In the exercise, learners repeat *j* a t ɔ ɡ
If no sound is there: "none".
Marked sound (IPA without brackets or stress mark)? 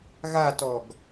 ɣ